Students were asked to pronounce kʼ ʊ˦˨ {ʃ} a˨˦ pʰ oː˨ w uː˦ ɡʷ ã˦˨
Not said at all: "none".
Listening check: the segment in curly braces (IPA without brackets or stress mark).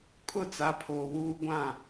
t͡s